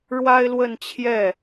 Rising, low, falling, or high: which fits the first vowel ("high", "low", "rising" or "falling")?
high